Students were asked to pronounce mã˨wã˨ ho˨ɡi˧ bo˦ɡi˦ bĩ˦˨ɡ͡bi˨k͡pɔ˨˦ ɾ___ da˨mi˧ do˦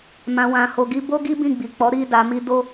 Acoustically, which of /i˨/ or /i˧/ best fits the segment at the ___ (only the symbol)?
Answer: i˧